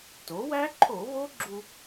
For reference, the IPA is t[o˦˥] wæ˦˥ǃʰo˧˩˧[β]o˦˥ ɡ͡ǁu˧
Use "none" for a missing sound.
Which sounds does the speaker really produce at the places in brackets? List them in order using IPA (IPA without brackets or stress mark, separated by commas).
o˩˥, β